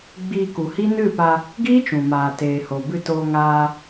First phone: ɡ͡b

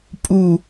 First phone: pʼ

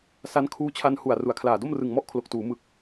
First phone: s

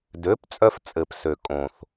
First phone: d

